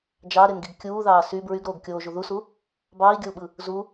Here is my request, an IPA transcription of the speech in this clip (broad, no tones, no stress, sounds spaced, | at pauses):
d͡ʒ ɑ ɾ e n ɡ i ɡ kʲ uː ð ɑː s y b ɹ y ɡ ɾ oː ɡ kʲ oː ʒ u ð u s u | b ɑː i̯ ɡʲ o u̯ ɓ ɯ | z u